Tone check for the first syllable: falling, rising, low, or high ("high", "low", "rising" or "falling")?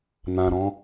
low